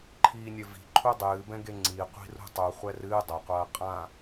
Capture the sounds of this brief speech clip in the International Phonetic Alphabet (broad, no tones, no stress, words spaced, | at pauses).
ǃʰiːnʲɘvi̤ ǃʰudˤɨːbɛ̃ɡe ŋ͡ǀi qʷi̤rṳtˤu χʷɛrɨː dˤɐqʷɐː qʼã